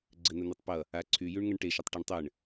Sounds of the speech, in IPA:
ɡ͡ǀ ɘ n ə n e tˤ p ʌ | a ǀʰ y j y ɳ ŋ ə ɳ ʈ e ʃ ə tˤ ʈ ʌ ɳ tˤ ɘ ɳ

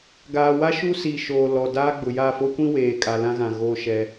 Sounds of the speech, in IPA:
ɡ aː˨ w a˦ ʃ u˦ s i˨ ʃ oː˨ l ɔ˨ d aː˦ ɡ͡b ʊ˨ j a˦˨ f o˦ kʷ ĩ˦ w eː˨ kʼ a˨ l ã˦ ɣ ã˨ ɣ o˦˨ ʃ ɛ˦

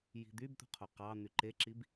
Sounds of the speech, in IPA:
j i̤ d̪ y b t̪ ṳ qʰ o q ɑ n̪ y ǃ e ǁ i b

